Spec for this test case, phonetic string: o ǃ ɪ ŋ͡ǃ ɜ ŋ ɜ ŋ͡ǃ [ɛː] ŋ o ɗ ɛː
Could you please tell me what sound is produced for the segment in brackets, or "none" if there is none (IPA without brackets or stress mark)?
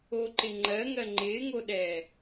ɪː